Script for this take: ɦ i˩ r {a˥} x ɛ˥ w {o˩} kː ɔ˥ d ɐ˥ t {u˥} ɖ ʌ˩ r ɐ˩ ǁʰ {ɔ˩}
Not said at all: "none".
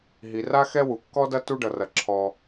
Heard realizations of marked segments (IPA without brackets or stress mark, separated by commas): a˥, u˩, u˥, ɔ˩